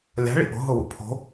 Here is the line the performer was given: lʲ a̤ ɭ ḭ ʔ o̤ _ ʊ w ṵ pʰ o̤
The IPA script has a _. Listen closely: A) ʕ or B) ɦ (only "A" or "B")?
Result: B